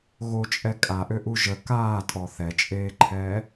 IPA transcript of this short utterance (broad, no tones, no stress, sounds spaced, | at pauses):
ɣ o t͡ʃʼ ɛ kʼ a ʔ ø ʔ u ʒ ə k aː tʼ ɔ θ ɛ t͡ʃʼ eː ǃʰ ɛː